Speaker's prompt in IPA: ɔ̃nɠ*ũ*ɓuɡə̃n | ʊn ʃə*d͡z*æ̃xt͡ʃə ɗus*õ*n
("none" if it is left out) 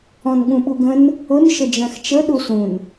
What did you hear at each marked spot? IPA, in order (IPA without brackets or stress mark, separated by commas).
ũ, d͡ʒ, ũ